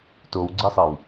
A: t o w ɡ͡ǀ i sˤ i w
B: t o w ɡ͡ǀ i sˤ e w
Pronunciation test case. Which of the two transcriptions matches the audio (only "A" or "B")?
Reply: B